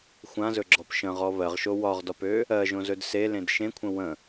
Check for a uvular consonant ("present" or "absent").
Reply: present